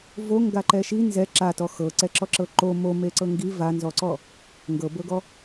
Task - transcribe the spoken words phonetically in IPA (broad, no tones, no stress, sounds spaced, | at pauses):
v o ŋ ɡ a ǃ ɛ ʃ i n z ɛ ǁ a t ɔ x ɤ ǀ ɛ ǁ ɔ ǁ ɤ ǃ o m o m e ǀ ɤ ŋ ɡ i v a n z ɔ ǀ ɔ | ŋ ɡ ɤ b ɤ ɡ ɔ